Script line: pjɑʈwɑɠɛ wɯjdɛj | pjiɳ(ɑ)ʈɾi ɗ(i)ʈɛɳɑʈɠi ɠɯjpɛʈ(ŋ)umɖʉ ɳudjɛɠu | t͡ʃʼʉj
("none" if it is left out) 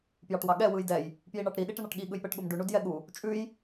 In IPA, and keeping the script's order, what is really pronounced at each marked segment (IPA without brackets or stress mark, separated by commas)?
ɑ, i, ɠ